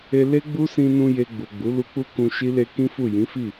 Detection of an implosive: absent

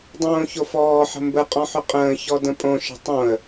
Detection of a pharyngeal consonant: present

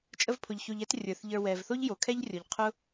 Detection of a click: absent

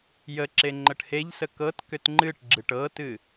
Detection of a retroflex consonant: present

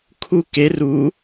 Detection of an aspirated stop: present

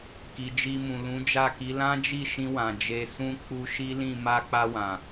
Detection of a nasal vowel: present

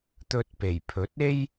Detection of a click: absent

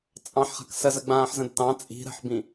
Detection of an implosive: absent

